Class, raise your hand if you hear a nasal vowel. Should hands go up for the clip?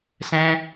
yes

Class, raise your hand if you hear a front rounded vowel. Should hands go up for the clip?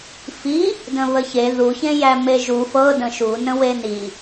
no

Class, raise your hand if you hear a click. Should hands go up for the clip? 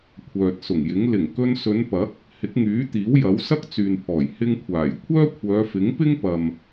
no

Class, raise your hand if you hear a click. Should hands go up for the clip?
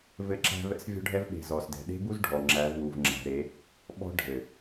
yes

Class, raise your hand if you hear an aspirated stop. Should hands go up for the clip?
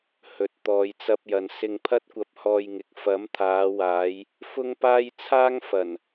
yes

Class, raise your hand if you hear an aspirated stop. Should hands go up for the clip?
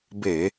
no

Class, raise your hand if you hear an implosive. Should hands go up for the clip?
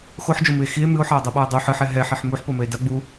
yes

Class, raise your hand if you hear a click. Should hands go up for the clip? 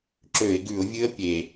yes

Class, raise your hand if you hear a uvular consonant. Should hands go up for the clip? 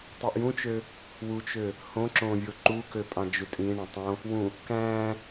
no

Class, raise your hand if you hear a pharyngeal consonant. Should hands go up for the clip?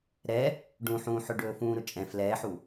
yes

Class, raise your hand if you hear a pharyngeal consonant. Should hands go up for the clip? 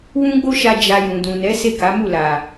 no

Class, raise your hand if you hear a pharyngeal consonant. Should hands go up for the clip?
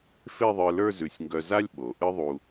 no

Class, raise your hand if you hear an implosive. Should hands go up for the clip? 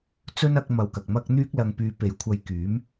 no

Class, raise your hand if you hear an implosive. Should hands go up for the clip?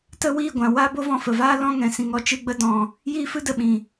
yes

